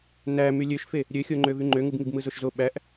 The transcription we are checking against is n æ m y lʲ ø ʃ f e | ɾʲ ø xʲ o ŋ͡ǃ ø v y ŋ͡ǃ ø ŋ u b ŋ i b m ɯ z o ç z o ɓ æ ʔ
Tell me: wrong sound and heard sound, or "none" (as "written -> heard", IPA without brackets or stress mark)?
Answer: ç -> ʃ